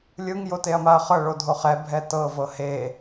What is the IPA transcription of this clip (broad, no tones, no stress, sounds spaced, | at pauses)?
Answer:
lʲ ɯ ŋ j o t e ɐ̯ m a ɐ̯ χ ɤ ɭ o dʱ o χ ɛ bʱ ɛ t ɤ v ɤ h e